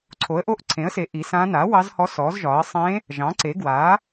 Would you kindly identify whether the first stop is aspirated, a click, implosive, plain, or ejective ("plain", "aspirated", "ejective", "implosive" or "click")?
click